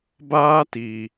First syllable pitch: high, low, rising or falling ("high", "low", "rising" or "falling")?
high